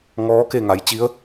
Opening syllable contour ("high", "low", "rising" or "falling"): rising